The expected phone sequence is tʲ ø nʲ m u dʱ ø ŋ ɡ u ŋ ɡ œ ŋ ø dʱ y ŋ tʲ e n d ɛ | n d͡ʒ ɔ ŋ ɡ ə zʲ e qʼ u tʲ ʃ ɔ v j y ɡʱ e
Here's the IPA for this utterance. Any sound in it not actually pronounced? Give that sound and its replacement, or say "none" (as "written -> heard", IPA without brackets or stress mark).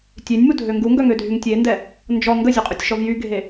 none